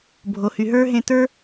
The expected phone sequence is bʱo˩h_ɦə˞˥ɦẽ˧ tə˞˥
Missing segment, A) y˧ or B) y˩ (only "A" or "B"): B